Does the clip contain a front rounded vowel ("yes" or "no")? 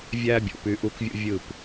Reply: yes